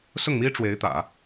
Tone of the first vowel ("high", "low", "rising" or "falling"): falling